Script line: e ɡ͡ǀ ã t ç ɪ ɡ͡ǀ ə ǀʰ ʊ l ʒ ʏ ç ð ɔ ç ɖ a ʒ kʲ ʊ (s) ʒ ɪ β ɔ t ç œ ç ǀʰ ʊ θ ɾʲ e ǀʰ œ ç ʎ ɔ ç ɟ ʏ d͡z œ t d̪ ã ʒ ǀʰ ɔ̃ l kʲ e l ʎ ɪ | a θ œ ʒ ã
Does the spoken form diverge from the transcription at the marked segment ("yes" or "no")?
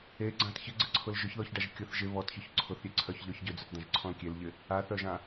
yes